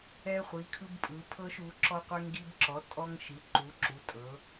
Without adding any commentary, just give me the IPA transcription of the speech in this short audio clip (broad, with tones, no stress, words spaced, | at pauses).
ɛ˧χʷi˩˧ kʰɯ˧bpʼɯ˩˧ pʰɤ˧ʃu˩˧ ǁɔ˧qʷɛ˧ŋɡi˧bǁɔ˩˧ tʼɔ˧ŋʃi˩˧ ǃu˩˧ ǁu˩˧tʼɤ˩˧